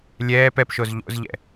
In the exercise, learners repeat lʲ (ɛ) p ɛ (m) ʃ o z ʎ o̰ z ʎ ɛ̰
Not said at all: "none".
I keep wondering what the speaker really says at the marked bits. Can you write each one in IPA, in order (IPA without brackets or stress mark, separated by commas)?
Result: ɛː, p